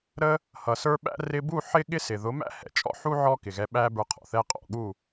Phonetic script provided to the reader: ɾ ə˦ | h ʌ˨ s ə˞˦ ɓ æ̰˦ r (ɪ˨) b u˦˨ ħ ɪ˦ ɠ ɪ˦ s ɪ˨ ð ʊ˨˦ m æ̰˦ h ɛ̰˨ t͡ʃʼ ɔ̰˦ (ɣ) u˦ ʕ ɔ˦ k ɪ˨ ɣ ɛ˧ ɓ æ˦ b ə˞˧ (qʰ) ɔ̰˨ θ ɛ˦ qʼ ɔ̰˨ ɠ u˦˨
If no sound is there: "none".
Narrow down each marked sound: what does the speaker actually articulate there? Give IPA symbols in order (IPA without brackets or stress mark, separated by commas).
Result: ɪ˧, ħ, qʰ